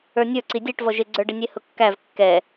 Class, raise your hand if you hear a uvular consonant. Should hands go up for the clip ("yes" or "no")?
no